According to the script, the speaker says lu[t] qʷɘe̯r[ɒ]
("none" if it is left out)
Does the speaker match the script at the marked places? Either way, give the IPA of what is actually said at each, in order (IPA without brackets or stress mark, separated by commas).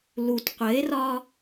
t, ɒ